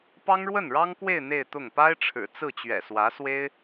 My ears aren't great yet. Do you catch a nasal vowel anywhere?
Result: no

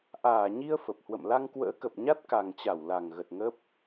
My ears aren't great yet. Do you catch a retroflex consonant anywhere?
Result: no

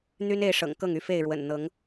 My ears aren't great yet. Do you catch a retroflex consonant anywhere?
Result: yes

